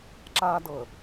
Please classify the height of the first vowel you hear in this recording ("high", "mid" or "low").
low